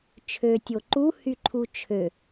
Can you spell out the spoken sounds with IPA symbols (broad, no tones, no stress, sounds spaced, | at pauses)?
t͡ʃʰ ø tʲ o ǃ u h y ǃʰ u t͡ʃʰ ø